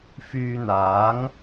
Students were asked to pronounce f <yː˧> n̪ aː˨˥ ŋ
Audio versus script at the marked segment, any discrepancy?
no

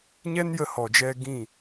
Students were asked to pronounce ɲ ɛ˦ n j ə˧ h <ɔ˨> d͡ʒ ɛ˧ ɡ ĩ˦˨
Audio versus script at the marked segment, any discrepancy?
no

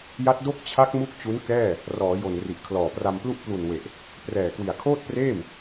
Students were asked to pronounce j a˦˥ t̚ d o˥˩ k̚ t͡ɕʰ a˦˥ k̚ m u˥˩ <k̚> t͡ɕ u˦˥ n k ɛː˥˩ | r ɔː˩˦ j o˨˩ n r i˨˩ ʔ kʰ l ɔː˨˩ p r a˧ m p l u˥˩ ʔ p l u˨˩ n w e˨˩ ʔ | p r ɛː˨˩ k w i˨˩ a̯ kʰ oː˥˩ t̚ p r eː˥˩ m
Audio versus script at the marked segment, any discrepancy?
no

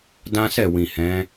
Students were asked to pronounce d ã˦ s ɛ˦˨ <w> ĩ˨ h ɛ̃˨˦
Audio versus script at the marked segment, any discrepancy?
no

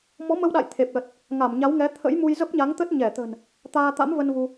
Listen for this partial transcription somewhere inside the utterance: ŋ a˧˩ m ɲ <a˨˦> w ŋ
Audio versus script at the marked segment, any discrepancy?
no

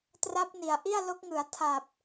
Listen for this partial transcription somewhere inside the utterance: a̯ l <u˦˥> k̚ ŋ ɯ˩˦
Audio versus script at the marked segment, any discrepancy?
yes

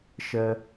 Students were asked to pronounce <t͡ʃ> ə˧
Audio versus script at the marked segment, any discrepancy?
yes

